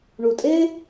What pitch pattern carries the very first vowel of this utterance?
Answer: low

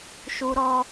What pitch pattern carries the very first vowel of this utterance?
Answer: high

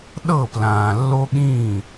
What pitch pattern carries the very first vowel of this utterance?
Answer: falling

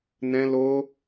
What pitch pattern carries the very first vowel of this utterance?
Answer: high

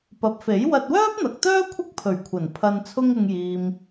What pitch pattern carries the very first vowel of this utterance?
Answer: low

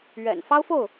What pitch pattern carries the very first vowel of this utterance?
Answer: low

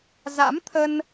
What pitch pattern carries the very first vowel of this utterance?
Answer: rising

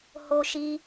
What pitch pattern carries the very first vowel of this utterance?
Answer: high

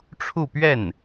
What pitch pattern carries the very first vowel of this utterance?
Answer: falling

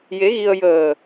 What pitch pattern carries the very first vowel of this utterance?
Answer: rising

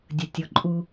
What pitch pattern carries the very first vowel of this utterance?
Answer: low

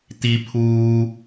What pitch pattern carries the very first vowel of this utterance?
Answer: low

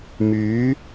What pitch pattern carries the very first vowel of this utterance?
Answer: rising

